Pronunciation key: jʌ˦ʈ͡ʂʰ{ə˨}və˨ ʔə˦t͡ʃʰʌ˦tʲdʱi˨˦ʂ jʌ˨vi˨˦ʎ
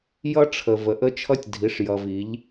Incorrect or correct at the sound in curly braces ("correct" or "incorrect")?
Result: correct